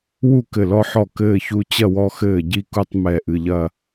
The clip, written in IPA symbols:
w u˥˨ k ɘ˧˩ l ɔ˦ ħ ɔ˧˩ k ɘː˥˨ ç u˦ t͡ɕ ɐ˥˨ w ɔ˦ x ɘː˧˩ ɟ i˥˨ k u˦ tˤ m ɛ˧˩ ʔ ɨ˧˩ ʎ ɐ˥˨

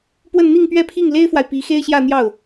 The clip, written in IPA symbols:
p w ə˥˧ n n̪ i˥˧ ŋ p ɥ ɛ˥˧ pʰ i˥˩ ŋ l e˥ ɪ̯ f w a˨ ɪ̯ p i˧˥ x e˥ ɪ̯ ɕ j ä˥˧ n̪ j ɑ˥˩ ʊ̯

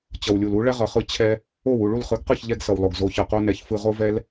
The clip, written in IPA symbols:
t͡ɕ ʌ˩ w lʲ u˩ l u˩˥ ɭ ɛ˥ ʁ ʌ˩ χ ɯ˧ t͡ɕʰ ɛ˧ | o˥˩ w u˥˩ ɭ u˥˩ l χ ɯ˩˥ ɡ q ɯ˥˩ ç ʎ ɛ˧ ɡ s ʌ˩ w lˠ o˩ ɡ z o˩˥ ç ʌ˩ q o˥ n ɛ˩˥ ç f ɯ˧ ʁ o˥ v ɛ˥ l

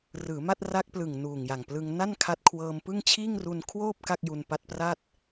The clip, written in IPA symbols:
r ɯː˩˦ m a˥˩ t̚ r a˦˥ k̚ p l ɯ˨˩ ŋ n uː˨˩ ŋ j a˨˩ ŋ p l ɯ˧ ŋ n a˥˩ n kʰ a˦˥ t̚ kʰ w ɤː˧ m p ɯ˥˩ ŋ t͡ɕʰ iː˥˩ ŋ r u˧ n kʰ w oː˥˩ p̚ k a˥˩ k̚ j u˧ n p a˦˥ t̚ p r a˥˩ t̚

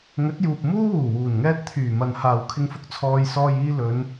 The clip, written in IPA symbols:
ŋ ɵ˨˥ t̚ j uː˨ p̚ m uː˥ w uː˨˩ w uː˨˩ n ŋ ɛː˧ t̚ t̪ʰ yː˨˩ m ɐ˨ n h aː˨ w kʰ ɪ˧ ŋ f ʊ˧ k̚ t͡sʰ ɔː˧ j s ɔː˧ j iː˧ l ɵ˨˧ n

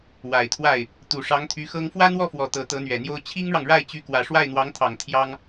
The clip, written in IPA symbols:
w a˨˩ ɪ̯ t̪ʰ w a˥˩ ɪ̯ | t̪ u˨˩ ʂ ɑ˧˥ ŋ t̪ʰ y˧˥ x ɤ˥ ŋ f w ä˥ n̪ w ɔ˥˩ f w ɔ˨˩ t̪ ɤ˧˥ t̪ ɤ˧˥ n̪ ɥ ɛ˨˩ n̪ j o˥ ʊ̯ t͡ɕʰ i˥ ŋ ɻ ɑ˨ ŋ ɻ a˥˩ ɪ̯ t͡ɕ y˧˥ k w ä˨˩ ʂ w a˥˩ ɪ̯ n̪ w ɑ˧˥ ŋ t̪ʰ ɑ˨˩ ŋ t̪ʰ j ɑ˥ ŋ

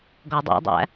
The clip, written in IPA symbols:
ɡ ɔ dˤ æ̰ dˤ æ̰

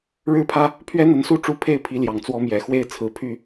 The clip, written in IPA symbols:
ɻ ɻ̩˦ pʰ ä˦ | pʰ ɥ ɛ˦ n̪ ə˨˦ n s u˥˨ ʈ͡ʂ u˦ pʰ e˥˨ ɪ̯ pʰ i˨˦ l j ɑ˨˩ ŋ t͡s w ɔ˦ m j ɛ˨˩ x w e˦ ɪ̯ t͡sʰ ɹ̩˨˦ pʰ y˥˨

